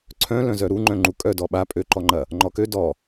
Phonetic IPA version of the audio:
ǀʰœ̃lœ̃ zœɾu ŋ͡ǃœ̃ŋ͡ǃukʼœ dɔɓa pʼøǃɔŋ͡ǃɐ | ŋ͡ǃɔkø dɔ

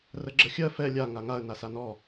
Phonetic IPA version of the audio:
rəɡ͡ǁəxʲɜ fɛ lʲa ŋaŋaə̯ nasanɔ

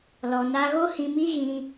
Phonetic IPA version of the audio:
lɔ˧na˦ ɣo˦hĩ˧mi˦ɣĩ˧

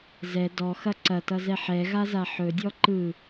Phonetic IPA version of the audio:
zɛ dɔxɐ ǀɐtʌzɛ ħɛɣaza ħɵdʲɔ ǃɯ

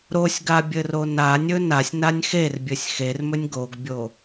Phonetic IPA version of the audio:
ɾosʲɡa bʲɘronanʲɵ nasʲnanʲ xerbʲɘsʲ xermɵnʲ ɡoɡbʲo

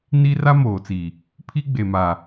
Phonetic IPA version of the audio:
ni˦ ra˦moː˨t͡si˨ | pʰi˦ɡ͡be˨ma˨

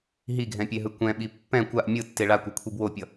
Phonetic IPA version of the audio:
ɦiɡʱɛ̃pʲeɦɯ kʷɛ̃ɓi pːɛ̃ kʷaʔ mʲɯtːe ɭakʷʌkʷʰi bwopʲʌ

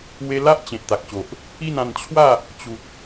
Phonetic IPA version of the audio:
we˧ la˦ʔt͡ɕẽ˨t̚t̪a˨k̚ɕo˨ʔ | i˥˧nã˧nt͡ɕʰwa˥˧ | t͡ɕu˨t̚

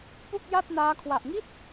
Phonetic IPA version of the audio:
pu˥˩k̚ja˥˩t̚naː˦˥ kʰwa˨˩ʔŋi˥˩t̚

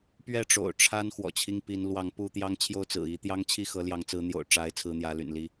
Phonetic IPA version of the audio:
pɥɛ˥˨ ʈ͡ʂo̰˨˩ʊ̯ ʈ͡ʂʰa˦n xwɔ̰˨˩t͡ɕʰi˦ŋpi˨˦n lwɑ˨˦ŋ pu˥˨ t̪jɑ˦ŋt͡ɕʰjo˥˨ʊ̯ t͡sɹ̩˨˩i˨˦ t̪jɑ˦ŋt͡ɕʰi˥˨ xɤ˨˦ljɑ˨˦ŋt͡sɹ̩˨˦n̪jo̰˨˩ʊ̯ ʈ͡ʂa˨˦ɪ̯ t͡sʰɹ̩˦n̪jä˨˦ly̰˨˩n li˦

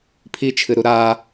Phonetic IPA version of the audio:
pʰit͡ʃʰɨɾu ɾa

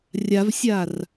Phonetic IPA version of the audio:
rʲavsʲar

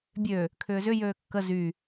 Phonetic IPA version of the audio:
bʲø | kʰʏːzʏ jøːkːə zy

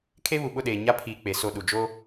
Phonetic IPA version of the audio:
kʰe˦βu˨ɓʊ˦˨ɗeː˨ ɲa˦ pʰiː˨ k͡pe˨so˦˨ ɗu˨ d͡ʒoː˦

